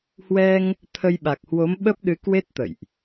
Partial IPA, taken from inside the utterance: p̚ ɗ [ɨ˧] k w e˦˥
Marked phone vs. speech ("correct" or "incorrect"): incorrect